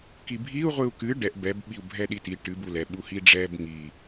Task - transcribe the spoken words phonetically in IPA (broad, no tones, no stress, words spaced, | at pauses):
kibʱiu̯ ʁʷɨu̯kɨ ɖɛʔ bɛb ɓiu̯bʱɛɗiti ʈɨ bulɛ ɓuhiɖ͡ʐɛb ŋi